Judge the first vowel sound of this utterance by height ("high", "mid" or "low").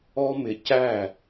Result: mid